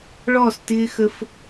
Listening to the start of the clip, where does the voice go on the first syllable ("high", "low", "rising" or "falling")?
falling